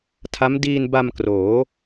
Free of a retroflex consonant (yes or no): yes